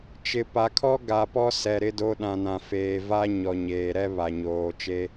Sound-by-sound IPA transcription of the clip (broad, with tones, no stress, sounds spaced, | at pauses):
t͡ʃ ɪ˨ p a˨ kʰ ɔ˦ ɡ a˨ p ɔ˦ s ɛ˨ ɾ ɪ˦ d o˦ ɗ ã˨ n ã˨ f eː˨ v a˦ ɲ ɔ˨ ɲ eː˨ ɾ ɛ˦ β a˨ ɲ oː˨ t͡ʃ e˦